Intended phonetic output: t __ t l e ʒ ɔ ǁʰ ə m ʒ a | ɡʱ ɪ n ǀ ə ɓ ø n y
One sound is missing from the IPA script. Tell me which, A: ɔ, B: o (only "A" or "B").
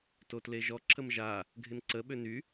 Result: B